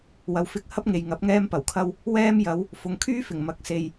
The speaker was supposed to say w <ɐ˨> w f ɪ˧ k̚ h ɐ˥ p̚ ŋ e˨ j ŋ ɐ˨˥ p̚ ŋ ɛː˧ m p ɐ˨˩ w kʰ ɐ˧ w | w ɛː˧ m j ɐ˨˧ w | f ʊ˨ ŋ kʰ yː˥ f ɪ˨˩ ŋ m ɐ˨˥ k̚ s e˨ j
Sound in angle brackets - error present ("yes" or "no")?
no